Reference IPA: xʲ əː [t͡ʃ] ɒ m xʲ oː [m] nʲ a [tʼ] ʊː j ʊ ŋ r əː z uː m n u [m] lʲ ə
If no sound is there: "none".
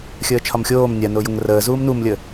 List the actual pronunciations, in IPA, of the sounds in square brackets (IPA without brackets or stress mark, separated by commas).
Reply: t͡ʃʰ, m, n, m